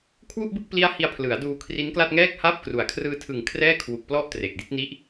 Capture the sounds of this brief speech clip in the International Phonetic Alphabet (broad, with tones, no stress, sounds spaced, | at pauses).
kʰ w u˥˩ ʔ b ɯ˥˩ k̚ p l i˦˥ a̯ h i˧ a̯ pʰ l ɯ˩˦ a̯ d uː˧ kʰ r i˦˥ n k l a˥˩ t̚ ŋ ɛː˥˩ k̚ h aː˥˩ p̚ k r u˨˩ a̯ kʰ r ɯː˧ tʰ ɯ˨˩ ŋ kʰ r ɛː˥˩ kʰ w u˨˩ k̚ p l ɔ˦˥ ʔ t r e˨˩ k̚ d i˥˩ t̚ n i˦˥ ʔ